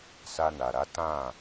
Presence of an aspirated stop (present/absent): absent